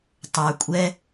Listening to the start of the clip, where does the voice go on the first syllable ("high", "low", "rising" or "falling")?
low